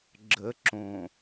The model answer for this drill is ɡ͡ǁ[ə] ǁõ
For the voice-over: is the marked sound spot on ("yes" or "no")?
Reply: yes